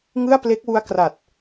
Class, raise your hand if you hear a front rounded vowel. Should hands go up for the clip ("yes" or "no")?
no